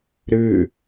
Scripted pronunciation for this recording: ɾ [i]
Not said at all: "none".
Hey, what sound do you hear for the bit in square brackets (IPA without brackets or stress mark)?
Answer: ɨ